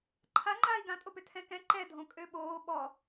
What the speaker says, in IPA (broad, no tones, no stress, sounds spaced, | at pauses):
ǃʰ a ŋ͡ǃ aː i̯ ɡ ã tʼ o p ø tʰ ɛ̃ k ɛ̃ ǃ ɛ dʱ õ kʼ ø ɓ oː ɓ ɔ